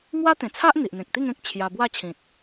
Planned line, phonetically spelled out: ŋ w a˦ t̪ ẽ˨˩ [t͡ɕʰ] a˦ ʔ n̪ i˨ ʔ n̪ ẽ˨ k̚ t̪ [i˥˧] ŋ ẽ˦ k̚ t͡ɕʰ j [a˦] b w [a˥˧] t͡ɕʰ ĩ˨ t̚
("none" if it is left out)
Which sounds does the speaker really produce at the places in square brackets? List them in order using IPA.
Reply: t͡sʰ, i˥˧, a˧, a˥˧

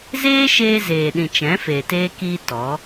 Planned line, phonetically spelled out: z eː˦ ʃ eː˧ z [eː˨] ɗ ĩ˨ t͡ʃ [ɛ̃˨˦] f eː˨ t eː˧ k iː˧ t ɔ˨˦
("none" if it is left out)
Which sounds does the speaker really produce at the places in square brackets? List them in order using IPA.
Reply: eː˨, ɛ̃˨˦

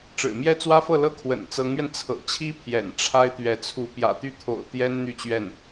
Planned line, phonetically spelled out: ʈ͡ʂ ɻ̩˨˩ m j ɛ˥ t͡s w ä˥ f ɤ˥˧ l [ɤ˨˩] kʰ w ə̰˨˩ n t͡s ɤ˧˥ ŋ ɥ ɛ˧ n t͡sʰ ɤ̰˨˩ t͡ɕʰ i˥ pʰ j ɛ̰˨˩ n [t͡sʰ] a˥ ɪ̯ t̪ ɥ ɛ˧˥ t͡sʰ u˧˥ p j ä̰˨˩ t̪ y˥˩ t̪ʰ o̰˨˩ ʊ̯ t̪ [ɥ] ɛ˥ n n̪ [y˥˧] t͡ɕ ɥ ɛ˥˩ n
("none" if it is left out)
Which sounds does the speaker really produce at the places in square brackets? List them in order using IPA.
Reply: ɤ˥˩, ʈ͡ʂʰ, j, y˥˧

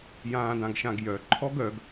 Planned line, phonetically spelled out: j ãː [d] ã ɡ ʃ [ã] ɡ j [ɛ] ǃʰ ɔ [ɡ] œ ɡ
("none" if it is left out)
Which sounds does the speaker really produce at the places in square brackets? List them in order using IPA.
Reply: d, ã, œ, ɡ

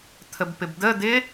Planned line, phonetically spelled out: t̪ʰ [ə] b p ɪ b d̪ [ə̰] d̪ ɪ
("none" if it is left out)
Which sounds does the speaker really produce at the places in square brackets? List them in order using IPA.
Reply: ə, ə

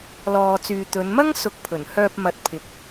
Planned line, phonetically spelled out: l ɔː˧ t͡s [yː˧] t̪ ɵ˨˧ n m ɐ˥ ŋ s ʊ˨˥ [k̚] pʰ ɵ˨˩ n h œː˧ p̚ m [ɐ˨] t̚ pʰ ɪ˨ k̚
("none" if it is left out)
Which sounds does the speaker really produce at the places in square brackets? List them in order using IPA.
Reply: yː˧, k̚, ɐ˨˥

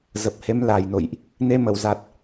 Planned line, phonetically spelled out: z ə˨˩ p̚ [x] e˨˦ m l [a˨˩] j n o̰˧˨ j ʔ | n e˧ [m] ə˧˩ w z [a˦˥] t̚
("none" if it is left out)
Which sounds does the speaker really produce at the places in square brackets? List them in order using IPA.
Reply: h, a˨˩, m, a˨˩

